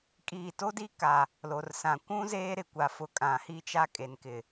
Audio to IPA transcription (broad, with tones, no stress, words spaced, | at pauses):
kʼiː˨to˦di˦ ka˨ | lo˨rsã˨ kʷũ˦ zeː˦ɾɪ˨kʷa˨fʊ˨ kʼã˨hi˦t͡ʃa˦ kʼe˨nkɪ˨